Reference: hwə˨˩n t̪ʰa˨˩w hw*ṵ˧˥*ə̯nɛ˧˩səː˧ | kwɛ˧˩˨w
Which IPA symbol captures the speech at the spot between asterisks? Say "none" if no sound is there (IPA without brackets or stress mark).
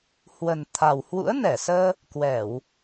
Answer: ṵ˧˥